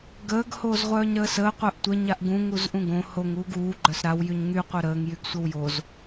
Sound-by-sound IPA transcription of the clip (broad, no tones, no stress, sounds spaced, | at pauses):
ɡ əː ɡ h oː z ʁʷ œː ɲ ɾ əː s əː qʷ œ ʔ tʷ ə ɲ a ʔ ɡ ũ ŋ u z ʔ ũ ɡ õ h o ŋ uː ɡ uː ɡ͡ǃ œ s ɾ a w j y ɲ ŋ y qʷ œ ɾ əː ŋ j y ɡ sʷ ə w j o z